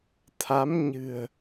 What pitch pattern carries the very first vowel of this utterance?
rising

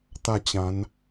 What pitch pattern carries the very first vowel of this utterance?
falling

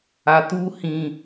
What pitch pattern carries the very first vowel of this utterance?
low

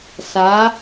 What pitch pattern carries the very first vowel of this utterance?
rising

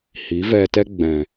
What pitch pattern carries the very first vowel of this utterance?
rising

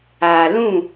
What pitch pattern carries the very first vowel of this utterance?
low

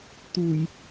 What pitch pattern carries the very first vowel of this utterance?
low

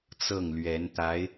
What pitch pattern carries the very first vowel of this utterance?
falling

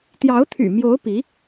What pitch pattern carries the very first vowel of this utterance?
rising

